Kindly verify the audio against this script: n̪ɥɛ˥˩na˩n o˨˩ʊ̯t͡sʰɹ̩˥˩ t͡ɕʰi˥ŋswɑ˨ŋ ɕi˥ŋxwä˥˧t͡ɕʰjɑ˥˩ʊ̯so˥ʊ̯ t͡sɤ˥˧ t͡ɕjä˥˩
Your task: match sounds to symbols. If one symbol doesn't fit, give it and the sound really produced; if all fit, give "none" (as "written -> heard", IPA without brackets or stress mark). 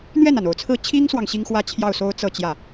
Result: none